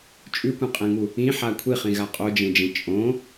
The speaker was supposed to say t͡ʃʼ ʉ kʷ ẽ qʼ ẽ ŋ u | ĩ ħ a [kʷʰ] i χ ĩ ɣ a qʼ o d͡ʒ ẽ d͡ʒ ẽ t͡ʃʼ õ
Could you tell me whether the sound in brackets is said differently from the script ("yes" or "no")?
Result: no